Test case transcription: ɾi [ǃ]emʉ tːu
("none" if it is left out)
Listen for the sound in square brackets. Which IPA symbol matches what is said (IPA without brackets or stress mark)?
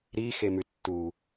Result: x